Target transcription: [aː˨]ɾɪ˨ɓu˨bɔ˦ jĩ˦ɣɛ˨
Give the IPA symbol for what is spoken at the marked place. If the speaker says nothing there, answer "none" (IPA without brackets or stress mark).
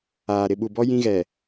aː˨